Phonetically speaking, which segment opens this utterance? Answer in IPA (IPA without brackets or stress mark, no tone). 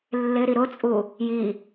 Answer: lː